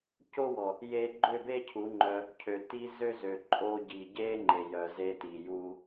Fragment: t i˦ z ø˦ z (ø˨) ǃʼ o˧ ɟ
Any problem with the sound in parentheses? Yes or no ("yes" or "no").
no